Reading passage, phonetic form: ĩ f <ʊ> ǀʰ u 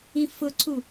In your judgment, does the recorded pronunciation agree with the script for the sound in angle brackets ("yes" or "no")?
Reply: yes